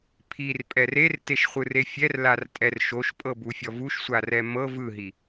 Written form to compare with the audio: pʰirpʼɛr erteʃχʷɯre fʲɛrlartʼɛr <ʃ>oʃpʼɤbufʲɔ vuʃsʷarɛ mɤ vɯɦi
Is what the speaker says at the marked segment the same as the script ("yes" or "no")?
yes